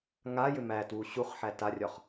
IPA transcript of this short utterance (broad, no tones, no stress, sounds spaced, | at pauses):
ŋ a j ʏ m æ t w u ɕ u χ ħ æ t a rʲ ɒ χ